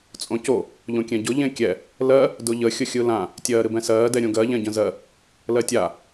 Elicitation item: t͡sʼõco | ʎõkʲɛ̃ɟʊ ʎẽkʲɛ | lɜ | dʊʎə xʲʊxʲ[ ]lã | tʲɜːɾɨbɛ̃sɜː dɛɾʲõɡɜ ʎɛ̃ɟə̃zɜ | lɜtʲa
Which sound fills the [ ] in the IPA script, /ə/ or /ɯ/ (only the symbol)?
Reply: ɯ